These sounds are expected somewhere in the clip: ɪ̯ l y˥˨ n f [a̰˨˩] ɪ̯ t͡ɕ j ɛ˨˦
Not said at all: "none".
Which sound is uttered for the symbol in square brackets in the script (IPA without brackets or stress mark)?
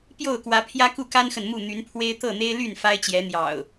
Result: a˦